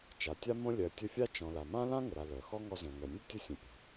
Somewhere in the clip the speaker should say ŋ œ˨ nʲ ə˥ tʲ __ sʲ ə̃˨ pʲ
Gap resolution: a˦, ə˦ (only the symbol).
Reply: ə˦